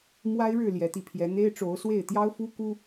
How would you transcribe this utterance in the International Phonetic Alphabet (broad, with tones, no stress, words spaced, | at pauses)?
mwa˦ɪ̯ɻɻ̩˥˨ ljɛ˨˦t̪i˧pʰjɛ˨˦ n̪e˦ɪ̯ʈ͡ʂo˨˦ʊ̯swe˥˨ɪ̯ t̪jɑ˦ʊ̯fu˦ ku˦